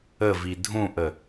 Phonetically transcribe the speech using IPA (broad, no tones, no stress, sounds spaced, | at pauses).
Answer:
ə v i dʱ ũ ʔ ə